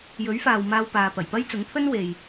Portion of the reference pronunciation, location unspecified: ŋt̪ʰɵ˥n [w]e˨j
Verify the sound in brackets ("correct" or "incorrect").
correct